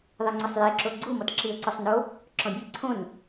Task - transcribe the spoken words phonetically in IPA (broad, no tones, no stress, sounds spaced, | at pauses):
ðˤ i ŋ͡ǀ ʊ sˤ j e ǁ o ɡ͡ǀ u m ɔ t ǁ i ə̯ ǀ o sˤ n o | ǁ ɔ̃ bʲ e ǀʰ õ n